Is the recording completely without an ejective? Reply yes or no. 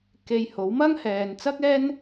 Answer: yes